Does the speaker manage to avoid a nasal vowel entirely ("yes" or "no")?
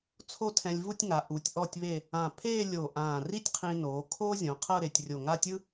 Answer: no